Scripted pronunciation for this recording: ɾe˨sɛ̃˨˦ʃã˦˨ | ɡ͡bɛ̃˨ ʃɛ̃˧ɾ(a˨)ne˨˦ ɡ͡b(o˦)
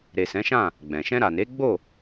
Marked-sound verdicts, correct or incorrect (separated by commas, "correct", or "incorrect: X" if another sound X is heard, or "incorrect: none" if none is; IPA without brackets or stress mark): correct, incorrect: o˦˨